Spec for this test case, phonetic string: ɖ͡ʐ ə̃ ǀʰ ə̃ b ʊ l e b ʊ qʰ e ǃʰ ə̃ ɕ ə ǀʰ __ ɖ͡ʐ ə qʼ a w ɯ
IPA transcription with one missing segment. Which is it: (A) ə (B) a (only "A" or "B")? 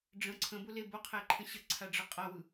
B